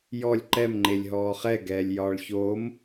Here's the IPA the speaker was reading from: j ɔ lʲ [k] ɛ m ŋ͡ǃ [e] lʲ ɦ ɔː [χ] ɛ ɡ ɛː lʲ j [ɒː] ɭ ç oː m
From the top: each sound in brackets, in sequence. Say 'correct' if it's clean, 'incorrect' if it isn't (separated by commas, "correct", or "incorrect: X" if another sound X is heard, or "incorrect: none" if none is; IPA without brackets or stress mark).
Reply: incorrect: ǃ, correct, correct, correct